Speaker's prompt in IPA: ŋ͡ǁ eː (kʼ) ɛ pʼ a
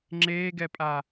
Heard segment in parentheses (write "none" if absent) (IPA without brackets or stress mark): ɡ